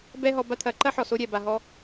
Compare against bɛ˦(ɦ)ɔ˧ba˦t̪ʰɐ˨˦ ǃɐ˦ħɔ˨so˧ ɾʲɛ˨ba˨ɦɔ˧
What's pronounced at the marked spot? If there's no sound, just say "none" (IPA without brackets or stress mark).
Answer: ɦ